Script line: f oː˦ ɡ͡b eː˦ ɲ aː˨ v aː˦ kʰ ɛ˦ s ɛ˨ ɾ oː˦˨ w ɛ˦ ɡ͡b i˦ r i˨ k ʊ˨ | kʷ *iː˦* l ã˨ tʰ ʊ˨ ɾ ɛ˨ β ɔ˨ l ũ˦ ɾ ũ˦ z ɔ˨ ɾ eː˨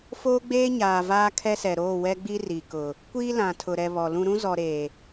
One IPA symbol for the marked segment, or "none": iː˦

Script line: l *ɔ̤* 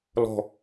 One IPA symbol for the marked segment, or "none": ɔ̤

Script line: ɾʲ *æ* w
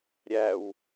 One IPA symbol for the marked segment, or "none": æ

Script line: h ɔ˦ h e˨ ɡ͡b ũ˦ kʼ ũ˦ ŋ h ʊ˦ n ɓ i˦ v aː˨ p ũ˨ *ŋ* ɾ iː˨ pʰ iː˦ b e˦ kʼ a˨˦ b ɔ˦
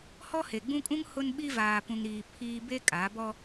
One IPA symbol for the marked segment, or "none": ŋ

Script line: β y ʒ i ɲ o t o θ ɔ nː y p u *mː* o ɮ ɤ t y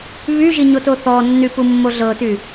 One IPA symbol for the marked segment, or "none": mː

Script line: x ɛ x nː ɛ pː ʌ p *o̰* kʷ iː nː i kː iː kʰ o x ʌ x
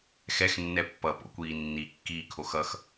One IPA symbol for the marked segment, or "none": o̰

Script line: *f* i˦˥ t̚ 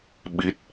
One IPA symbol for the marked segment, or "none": ɓ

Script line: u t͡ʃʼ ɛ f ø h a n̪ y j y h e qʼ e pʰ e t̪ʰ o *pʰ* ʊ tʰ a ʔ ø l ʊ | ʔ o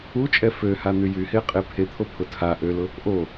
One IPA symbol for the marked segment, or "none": pʰ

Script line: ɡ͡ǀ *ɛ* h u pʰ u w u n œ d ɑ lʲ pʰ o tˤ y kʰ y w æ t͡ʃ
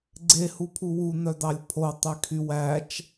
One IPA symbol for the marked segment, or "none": e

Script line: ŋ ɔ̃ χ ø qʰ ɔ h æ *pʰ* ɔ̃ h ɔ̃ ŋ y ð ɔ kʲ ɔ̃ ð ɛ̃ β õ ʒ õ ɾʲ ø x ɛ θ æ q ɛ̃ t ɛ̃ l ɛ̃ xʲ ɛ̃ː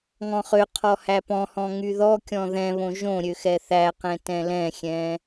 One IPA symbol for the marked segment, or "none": p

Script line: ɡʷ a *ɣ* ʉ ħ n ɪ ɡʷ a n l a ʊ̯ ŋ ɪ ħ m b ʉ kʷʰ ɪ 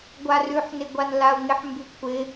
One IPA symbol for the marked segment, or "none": r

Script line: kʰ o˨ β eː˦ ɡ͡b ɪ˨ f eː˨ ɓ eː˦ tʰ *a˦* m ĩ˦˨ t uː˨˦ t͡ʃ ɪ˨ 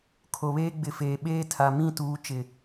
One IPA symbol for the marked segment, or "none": a˨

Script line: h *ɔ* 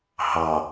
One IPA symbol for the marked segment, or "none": ɑ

